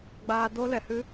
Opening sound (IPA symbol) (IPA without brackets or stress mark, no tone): ɡ͡b